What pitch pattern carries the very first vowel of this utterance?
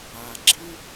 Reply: low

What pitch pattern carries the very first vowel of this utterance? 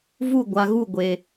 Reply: falling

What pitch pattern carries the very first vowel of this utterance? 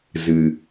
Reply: low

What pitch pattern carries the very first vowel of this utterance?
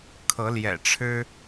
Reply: rising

